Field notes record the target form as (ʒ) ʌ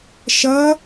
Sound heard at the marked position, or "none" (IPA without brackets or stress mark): ʃ